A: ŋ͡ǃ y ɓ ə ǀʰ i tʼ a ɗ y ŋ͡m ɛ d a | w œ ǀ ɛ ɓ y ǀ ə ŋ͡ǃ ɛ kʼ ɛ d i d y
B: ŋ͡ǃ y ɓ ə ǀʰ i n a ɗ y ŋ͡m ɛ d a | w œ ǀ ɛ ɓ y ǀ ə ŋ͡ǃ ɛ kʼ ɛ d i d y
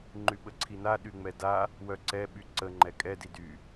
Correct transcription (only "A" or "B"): B